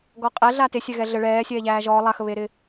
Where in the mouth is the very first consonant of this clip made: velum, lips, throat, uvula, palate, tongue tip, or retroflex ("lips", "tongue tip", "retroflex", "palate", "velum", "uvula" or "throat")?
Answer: velum